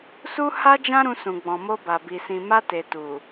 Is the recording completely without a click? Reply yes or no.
yes